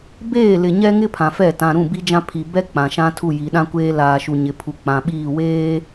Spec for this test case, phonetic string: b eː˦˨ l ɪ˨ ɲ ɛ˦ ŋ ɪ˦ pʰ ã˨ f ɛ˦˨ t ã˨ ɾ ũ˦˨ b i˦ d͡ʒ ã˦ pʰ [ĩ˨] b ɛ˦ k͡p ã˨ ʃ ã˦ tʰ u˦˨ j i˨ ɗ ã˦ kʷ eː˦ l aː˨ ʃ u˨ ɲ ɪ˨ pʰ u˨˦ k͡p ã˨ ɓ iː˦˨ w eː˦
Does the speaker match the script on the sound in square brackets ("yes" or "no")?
no